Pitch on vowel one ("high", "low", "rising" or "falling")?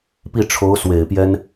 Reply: falling